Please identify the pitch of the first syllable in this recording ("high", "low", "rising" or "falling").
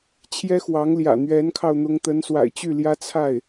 high